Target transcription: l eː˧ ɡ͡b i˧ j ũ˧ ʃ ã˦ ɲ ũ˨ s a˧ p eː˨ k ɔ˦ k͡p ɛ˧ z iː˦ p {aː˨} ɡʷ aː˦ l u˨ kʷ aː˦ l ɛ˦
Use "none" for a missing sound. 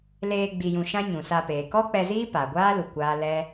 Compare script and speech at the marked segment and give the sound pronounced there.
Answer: aː˨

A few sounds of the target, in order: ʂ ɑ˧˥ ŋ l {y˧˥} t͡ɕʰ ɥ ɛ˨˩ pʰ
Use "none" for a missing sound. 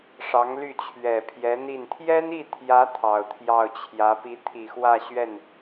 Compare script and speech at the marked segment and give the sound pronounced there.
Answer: y˥˩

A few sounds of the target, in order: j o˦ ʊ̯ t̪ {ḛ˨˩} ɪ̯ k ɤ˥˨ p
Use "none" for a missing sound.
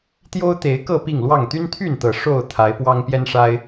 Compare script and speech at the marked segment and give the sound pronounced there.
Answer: e˨˦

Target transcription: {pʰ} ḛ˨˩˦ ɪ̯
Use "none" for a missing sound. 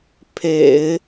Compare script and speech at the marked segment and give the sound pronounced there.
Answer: pʰ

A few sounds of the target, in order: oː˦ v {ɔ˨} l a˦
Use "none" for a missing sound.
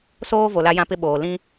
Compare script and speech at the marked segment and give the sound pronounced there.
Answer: o˨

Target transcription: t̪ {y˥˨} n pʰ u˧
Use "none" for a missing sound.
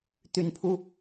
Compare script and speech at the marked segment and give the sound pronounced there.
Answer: y˨˦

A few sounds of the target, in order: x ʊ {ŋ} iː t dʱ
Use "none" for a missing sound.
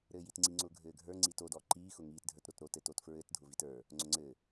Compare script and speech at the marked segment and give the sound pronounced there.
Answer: ŋ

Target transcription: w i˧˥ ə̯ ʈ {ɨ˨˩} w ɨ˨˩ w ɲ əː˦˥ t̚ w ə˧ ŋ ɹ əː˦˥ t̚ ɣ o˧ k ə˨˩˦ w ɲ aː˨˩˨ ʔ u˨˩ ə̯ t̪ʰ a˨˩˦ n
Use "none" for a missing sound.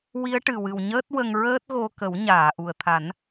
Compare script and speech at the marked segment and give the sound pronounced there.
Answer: ɨ˨˩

